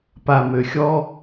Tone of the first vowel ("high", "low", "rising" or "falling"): low